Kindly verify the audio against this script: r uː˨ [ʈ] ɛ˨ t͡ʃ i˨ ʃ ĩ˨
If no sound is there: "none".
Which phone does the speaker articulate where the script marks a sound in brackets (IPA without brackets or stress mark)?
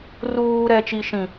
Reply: ɾ